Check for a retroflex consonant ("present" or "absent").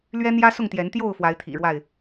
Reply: present